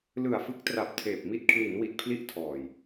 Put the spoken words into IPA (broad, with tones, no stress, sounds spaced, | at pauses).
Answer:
l ɯ˨˩ a̯ f ɯ˦˥ k̚ t r a˨˩ p̚ tʰ eː˨˩ p̚ m i˥˩ t̚ kʰ l i˩˦ n w i˨˩ t̚ pʰ l i˥˩ ʔ tʰ ɔː˨˩ j